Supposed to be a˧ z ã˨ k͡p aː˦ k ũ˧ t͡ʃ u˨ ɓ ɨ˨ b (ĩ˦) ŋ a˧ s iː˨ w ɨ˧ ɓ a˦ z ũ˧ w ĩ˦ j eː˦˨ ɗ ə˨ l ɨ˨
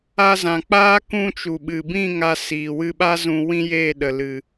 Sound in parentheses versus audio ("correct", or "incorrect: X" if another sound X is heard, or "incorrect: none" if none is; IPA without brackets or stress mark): incorrect: ĩ˦˨